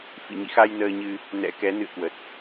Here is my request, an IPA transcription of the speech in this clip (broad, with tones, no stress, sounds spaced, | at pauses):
f ḭ˧˨ ɲ ḭ˧˨ x a˧ j n əː˧ ɲ ɨ˧ | n ɛ̰˧˥ k ɛ˨˦ n ɨ̰˧˨ ə̯ k w ə˨˩ t̚